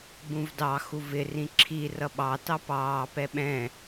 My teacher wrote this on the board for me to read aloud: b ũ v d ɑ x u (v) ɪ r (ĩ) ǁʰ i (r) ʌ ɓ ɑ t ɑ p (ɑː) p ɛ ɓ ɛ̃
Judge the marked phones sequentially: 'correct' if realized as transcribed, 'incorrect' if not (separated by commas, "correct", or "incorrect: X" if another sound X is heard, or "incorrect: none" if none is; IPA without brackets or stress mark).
correct, correct, correct, correct